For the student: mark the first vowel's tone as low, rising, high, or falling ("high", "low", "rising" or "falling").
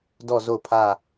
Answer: falling